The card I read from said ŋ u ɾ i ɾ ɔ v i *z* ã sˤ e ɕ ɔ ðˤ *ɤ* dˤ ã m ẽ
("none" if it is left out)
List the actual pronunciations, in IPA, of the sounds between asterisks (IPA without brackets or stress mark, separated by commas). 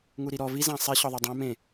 z, ɤ